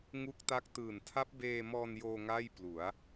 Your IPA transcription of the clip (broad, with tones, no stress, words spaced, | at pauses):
ŋu˦˥k̚ta˦˥k̚tɯː˨˩n tʰa˦˥p̚beː˧mɔː˧n joː˧ ŋaː˥˩jplu˩˦a̯